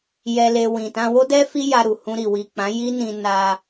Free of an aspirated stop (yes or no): yes